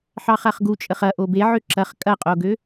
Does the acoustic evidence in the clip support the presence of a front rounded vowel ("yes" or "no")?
yes